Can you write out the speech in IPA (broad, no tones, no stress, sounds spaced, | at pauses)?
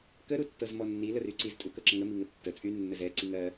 k ə ɾ u tː ɤ z m ɔ nː i l ə r y ǀ i z tʼ u k ɤ ǁ ə ŋ ə m i ŋ ə tː ə t͡sʼ y nː ə z ɛ ǀ i ŋ ɜ